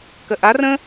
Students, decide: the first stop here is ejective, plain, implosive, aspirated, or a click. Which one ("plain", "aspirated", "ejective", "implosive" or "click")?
plain